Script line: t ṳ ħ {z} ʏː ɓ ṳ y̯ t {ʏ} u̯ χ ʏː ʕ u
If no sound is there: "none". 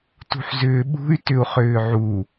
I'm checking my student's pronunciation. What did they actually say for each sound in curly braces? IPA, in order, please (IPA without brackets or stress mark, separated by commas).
z, ʏ